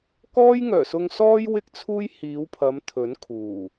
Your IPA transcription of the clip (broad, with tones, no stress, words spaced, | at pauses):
kɔː˥jŋœː˨˩sʊ˧ŋsɔː˥j wɪ˥k̚t͡sʰuː˥jhiː˨˧wpʰɐ˨˧m t̪ʰɵ˨˥nkʰuː˨˩